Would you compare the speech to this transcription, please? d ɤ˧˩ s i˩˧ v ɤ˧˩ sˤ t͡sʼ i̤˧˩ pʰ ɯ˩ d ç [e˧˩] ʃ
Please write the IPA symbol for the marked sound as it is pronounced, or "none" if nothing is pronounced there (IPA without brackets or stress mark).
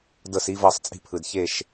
e˧˩